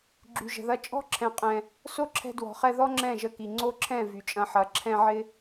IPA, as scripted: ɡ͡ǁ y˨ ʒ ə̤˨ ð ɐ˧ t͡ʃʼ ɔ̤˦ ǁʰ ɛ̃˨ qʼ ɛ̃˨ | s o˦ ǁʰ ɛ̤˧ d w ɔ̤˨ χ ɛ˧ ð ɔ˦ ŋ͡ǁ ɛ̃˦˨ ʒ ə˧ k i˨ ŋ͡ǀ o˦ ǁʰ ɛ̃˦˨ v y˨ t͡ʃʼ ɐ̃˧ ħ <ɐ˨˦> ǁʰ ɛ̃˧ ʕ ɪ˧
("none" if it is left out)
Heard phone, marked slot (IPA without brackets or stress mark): ɐ˨˦